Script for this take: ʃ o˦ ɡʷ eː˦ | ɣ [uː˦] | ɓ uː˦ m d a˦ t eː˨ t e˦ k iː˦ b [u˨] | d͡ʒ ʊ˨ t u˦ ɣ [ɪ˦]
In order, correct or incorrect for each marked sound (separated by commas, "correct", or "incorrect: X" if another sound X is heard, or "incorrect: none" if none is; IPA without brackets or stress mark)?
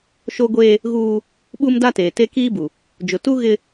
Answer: correct, correct, correct